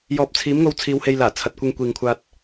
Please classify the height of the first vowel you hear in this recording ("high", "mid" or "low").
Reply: mid